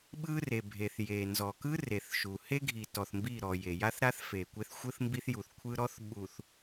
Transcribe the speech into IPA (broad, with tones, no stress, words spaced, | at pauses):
ɓɯ˦re˨bʱe˨θje˨ nzɔ˨kɯ˦re˨θ ʃu˨ he˦ɡʱi˨tɔ˨θ mbi˦˨ɾɔ˨je˨ ja˦θɾa˦θ fe˨kʷe˦θ xʷɯ˦θmbi˦θju˨θkʷʰɯ˦ ɾɔ˦θɓu˨θ